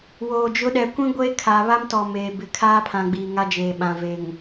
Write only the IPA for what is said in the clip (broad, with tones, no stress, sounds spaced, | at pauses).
w oː˨ d͡ʒ ʊ˨˦ ɗ ɛ˨ kʷ ĩ˦ ɡʷ eː˦ kʰ aː˨ β a˦ m t ɔ˨ m eː˨ b ɪ˨˦ kʰ aː˦ pʰ ã˨ ɡ͡b i˨ ŋ a˦ d͡ʒ eː˨ ɓ ã˨ v e˨ ŋ